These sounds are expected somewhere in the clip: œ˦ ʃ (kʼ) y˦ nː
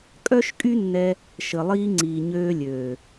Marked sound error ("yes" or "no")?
no